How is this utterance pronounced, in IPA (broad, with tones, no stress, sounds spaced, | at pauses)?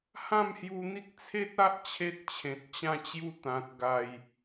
h ã˥˧ m h j u˧ n̪ i˦ k̚ t͡sʰ e˦ t̚ a˦ ʔ t͡ɕʰ e˦ t̚ t͡ɕʰ ẽ˨ t̚ t͡ɕ ã˥˧ t͡ɕ j u˦ t̪ ã˨ t̚ ɡ a˨˩ j